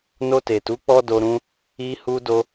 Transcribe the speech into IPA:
no˧te˨tu˨˦ k͡pɔ˦do˧ ɾũ˦ | i˧hu˧do˧

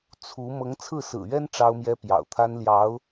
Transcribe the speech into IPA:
t͡sʰu˧˥ mɤ˧˥ŋt͡sʰɹ̩˥˩sɹ̩˨˩ɥɛ˥n ʈ͡ʂɑ˥ʊ̯mjɛ˥ pjɑ̰˨˩ʊ̯t̪ʰa˥n ljɑ˧˥ʊ̯

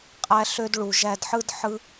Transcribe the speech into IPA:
qʼæ˦ɬø˦d ɭu˨ʒæ˦d ħɯ˥d ħɯ˦

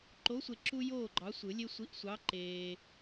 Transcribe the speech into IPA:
ǃo˨˥sʷe˨ ǁu˦ joː˥˩ɡ͡ǃɑ˨˥sʷɯ˨˩˦lʲe˦ sʷi˨˥ʔsʷɑ˨˥ ǃeː˨

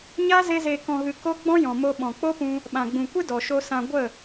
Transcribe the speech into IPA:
ɲa˦ ze˧zeː˨ kɔ̃˨ɣɨ˨ ko˦ ɡ͡bɔ̃˦jɔ̃˨mo˧ ɓɔ̃˨k͡po˦pũ˧ | ɓã˨ɡ͡bũ˨kʷɨ˦ dɔ˨ʃo˧ sã˧ ɡʷə˦˨

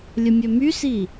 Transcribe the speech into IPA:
lʲəmʲømysi

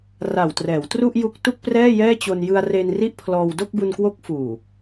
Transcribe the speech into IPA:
ra˨˩wtrɛː˩˦w tru˥˩ʔju˦˥k̚tu˥˩k̚ prɛː˥˩jɛː˥˩t͡ɕo˧n jɯ˧a̯re˧n ri˥˩ʔpʰlɔː˧w do˥˩k̚bu˧nkwo˦˥k̚ fuː˨˩

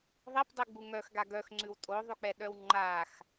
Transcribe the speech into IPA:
ðˤipdˤiɡ͡bu ŋœxɡa ɡœxŋ͡ǀʉw tʼoðˤʉk͡pɛɗœw ŋ͡ǃax

